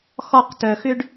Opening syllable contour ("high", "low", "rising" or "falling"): falling